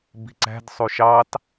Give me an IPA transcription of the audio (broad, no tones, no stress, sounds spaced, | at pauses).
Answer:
b i̤ ǀ æ̤ d sˤ u ʃ ɑ t